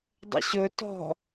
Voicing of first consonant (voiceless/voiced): voiced